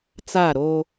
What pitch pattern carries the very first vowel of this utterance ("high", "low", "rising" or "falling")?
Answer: falling